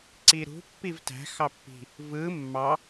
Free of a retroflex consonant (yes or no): yes